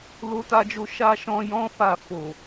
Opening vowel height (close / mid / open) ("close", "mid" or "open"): mid